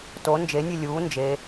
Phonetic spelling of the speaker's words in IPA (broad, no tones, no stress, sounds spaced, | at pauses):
t o n d͡ʒ e nʲ e lʲ uː n d͡ʒ e